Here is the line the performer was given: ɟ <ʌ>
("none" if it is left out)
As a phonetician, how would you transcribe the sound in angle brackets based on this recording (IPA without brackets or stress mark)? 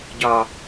ɒ